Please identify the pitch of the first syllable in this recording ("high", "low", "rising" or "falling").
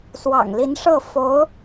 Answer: low